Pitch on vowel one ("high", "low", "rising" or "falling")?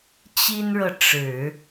high